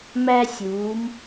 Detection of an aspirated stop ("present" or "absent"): absent